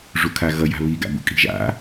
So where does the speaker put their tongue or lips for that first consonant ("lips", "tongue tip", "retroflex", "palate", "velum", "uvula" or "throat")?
retroflex